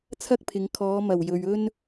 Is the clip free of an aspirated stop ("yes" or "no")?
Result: no